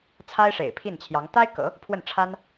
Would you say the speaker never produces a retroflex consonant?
no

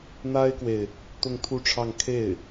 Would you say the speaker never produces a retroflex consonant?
no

